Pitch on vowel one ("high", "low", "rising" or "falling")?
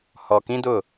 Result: low